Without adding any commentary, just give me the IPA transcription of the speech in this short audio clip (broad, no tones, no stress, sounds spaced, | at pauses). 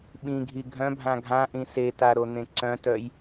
ɓ ĩ ɡʱ i ɡʱ œ̃ bʱ ã ɡʱ ã ʔ ĩ s e t a ɾ o n̪ ẽ ǀ œ̃ t œ j